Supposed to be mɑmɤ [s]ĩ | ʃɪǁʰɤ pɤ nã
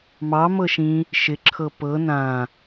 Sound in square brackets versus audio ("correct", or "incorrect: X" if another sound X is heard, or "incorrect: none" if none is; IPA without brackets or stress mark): incorrect: ʃ